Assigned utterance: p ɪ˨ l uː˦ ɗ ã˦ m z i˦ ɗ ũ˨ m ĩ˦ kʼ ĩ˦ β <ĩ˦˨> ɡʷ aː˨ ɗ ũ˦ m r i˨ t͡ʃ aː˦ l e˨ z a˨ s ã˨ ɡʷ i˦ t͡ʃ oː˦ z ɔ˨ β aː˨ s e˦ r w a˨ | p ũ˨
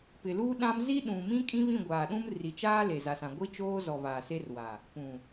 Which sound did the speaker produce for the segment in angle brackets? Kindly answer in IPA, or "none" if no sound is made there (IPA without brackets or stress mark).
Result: ĩ˦˨